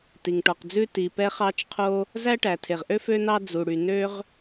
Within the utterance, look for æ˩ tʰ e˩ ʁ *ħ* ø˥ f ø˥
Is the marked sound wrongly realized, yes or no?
yes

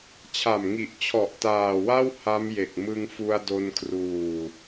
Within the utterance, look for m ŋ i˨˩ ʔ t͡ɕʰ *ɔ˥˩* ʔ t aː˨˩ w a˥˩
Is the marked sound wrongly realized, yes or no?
yes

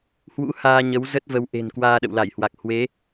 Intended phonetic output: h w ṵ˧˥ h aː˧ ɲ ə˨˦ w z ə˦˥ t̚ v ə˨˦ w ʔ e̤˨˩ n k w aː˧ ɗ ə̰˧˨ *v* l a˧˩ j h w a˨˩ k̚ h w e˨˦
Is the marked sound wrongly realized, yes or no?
yes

